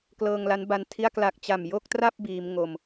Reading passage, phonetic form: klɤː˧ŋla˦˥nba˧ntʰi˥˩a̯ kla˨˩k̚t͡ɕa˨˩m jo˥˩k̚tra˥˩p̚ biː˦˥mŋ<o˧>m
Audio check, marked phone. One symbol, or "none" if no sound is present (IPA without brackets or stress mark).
o˧